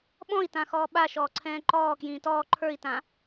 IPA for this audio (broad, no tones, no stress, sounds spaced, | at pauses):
ɓ ɔ̃ i̯ t ã x ɔː ɓ a ʃ ɔː ǀʰ ɛ̃ː ǃ ɔː k j ĩː t ɔː ǃʰ ə˞ i̯ t ã